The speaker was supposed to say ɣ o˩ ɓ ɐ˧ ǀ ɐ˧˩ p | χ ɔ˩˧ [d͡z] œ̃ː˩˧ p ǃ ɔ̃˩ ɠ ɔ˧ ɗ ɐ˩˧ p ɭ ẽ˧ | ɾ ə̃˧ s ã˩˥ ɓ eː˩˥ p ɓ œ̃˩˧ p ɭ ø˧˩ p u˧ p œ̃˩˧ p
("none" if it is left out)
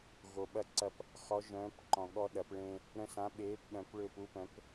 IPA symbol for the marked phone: ʒ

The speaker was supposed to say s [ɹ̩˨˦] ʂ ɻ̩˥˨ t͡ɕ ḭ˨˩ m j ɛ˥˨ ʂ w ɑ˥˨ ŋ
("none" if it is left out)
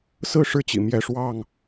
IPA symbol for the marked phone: ɹ̩˥˨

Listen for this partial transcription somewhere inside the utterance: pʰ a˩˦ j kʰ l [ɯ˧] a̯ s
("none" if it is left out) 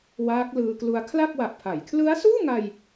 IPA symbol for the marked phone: ɯ˦˥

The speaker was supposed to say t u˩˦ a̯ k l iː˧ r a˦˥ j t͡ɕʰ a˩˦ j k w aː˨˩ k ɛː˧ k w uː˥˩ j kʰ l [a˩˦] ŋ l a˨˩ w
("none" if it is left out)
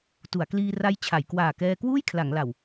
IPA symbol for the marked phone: a˩˦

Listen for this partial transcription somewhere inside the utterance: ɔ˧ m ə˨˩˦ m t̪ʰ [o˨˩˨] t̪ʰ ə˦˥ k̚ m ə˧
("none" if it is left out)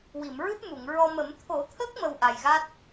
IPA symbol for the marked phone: o˨˩˦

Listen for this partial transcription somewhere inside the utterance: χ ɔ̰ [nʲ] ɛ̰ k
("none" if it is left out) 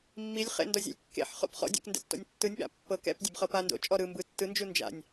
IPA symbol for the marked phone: dʲ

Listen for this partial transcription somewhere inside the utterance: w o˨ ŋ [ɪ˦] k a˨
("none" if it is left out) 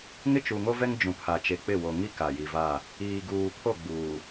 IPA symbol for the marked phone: i˦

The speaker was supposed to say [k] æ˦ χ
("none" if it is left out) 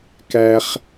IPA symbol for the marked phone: k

